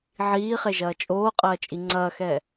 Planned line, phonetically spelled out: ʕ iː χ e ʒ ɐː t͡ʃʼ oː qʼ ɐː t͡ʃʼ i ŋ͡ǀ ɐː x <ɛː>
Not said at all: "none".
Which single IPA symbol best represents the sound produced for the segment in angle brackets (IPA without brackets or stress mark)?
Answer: ɛː